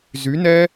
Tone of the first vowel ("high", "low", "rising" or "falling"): rising